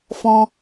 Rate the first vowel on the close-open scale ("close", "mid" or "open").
mid